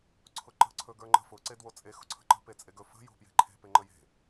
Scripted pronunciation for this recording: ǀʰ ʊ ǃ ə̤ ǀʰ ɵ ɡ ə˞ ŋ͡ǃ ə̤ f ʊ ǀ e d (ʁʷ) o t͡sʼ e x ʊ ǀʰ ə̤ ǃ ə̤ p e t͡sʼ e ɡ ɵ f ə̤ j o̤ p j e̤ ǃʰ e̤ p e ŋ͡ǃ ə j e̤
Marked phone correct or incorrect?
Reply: incorrect